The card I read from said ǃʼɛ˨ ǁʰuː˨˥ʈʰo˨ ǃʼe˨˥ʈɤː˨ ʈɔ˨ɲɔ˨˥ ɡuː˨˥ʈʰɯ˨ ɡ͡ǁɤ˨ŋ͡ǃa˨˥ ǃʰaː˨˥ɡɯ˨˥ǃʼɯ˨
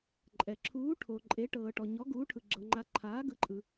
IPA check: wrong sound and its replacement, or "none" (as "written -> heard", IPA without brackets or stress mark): none